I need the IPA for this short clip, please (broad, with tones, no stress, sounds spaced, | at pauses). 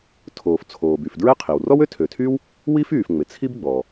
tʰ oː˩ f t͡sʰ oː˩ b y˩ f d ɹ ɛ˥ qʰ i˩ w r ɔ˥ w ø˥ tʰ ø˩ tʰ yː˥ w | w i˥ f yː˩ f ŋ͡m ɪ˩ t͡sʰ i˥ b ɡ͡b ɔ˩